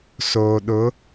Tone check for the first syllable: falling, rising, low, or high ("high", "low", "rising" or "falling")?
low